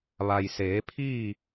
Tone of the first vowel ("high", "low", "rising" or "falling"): low